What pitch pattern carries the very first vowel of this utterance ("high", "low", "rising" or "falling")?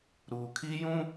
low